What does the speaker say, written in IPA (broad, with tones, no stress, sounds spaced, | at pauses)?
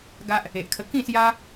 ɡ a˦ ʔ | e˨ ʔ kʰ ə˧ k ĩ˥˧ s j a˦